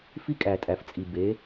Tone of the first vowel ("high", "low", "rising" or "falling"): high